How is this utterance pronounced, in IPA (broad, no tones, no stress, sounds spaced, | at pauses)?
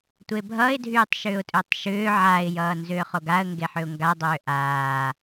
tʷ e bʱ ʌ ɪ̯ dʱ yː tˤ ʃ ʏː ʊ̯ tʼ ʏː tˤ ʃ ʏː ʕ a ɪ̯ j ʌː n z ʏː χ o ɡ a ə̯ ŋ ɡ e ħ ʏ ʊ̯ ŋ ɡ a dˤ ʏː ʔ aː